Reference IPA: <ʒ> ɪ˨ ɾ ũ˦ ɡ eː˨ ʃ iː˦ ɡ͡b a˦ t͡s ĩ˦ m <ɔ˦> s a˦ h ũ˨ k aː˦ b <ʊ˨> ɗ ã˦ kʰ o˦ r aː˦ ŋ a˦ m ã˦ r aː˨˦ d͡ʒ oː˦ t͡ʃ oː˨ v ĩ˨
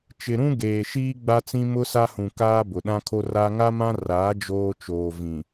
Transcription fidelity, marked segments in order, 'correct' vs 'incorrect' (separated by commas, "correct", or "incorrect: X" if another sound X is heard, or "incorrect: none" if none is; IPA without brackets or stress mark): incorrect: t͡ʃ, incorrect: ʊ˦, correct